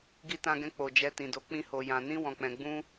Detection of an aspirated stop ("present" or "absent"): absent